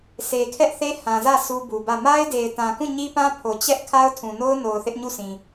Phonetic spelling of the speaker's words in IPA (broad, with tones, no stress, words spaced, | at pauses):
se˨kʰɛ˦ʔθe˦ hã˨zä˦˨ sʰu˦bu˨bä˦˨ ma˦ɪ̯de˨ɪ̯tã˨kũ˦˨ ɲi˦pã˦pʰo˨ t͡ɕɛ˦ʔ kʰa˦ʊ̯tʰũ˨no˦ʊ̯ no˨ʊ̯θɪ˦ʔɲu˦˨sĩ˨